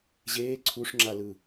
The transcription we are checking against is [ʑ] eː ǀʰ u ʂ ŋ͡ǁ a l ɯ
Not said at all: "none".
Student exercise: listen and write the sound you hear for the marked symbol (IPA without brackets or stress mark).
ʑ